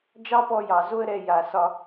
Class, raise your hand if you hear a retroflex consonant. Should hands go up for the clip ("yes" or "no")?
no